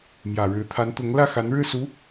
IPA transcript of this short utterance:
mjä˨˩ɻɻ̩˧˥t̪ʰa˧˥nt̪ʊ˧˥ŋ lä˥˩xa˧˥nɻɻ̩˥˩su˧˥

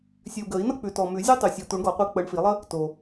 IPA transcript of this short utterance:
sʲʉ˨u̯ɡəː˨˩˦i̯nʌ˥k͡pʉ˨ tɔ˨mʉ˨˩˦zʲu˥tˤʉ˨ sʲʌː˨t̪u˨˩˦ɳɡɔ˨˩˦qʷi˨˦ k͡pəː˨˦ɳfi˨˩˦lˠə˥ | to˨

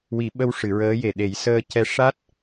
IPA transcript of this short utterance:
wi˨˩˦ɓə˧w ʂɨ˨˩˨ɹəː˧˥je˨˩ɗe˨˩˦j səː˧cɛ˧ʂa˦˥t̚

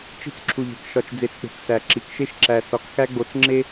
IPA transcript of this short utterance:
t͡ʃi̤˦t͡sǁʰu˨ʎe̤˨k ʃɒ˨t͡ʃd͡ze˨t͡sk͡pe̤˨k sæ˨ǁi˨˦k ʃe˦ʃǁæ˨ sɒ˨˦kxæ˦ɡ͡bo˨t͡s ŋ͡ǁe˦

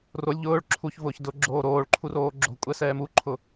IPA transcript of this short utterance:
rolʲ ʎʊːɭ ǁʰuçvʊːç dʊ ɡ͡ǁoːɾoːɭǃʰu roːɡ͡ǁo̤kʷʼɛ sɛːmuǃʰʊ

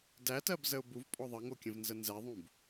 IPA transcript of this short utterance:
dætɜbzəʊ̯ buvpʼɔ ðˤɜŋokʲə̃vnzə nzɛðˤũb

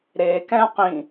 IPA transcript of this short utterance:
ɾe kɛ̃ qĩ

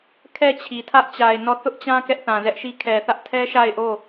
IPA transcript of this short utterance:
kʰɛ˦˨t͡ɕʰi˨tʰä˦ʔ t͡ɕa˨ɪ̯ nɔ˦˨ θʊ˦ʔt͡ɕã˦ kɛ˦ʔθã˨zɛ˦ʔʃi˦ kʰɛ˨θä˦ʔtʰɛ˦ ʃa˦˨ɪ̯ʔo˦˨

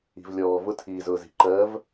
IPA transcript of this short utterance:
i̤˩vlʲɔː˩vʊ˧˥ tʰiː˩zʊː˩zi̤˩ ǃɜ˧˥v

